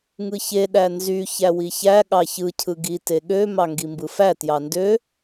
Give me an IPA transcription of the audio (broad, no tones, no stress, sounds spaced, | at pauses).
ŋ ɯ ç e ɗ æ n z y ç æ w i ç æ ɠ ɑ ç ɯ cʰ ɯ ɡ i t e ɠ ø m ɑ ŋ ɡ i m b ɯ f æ t j ɑ n d ø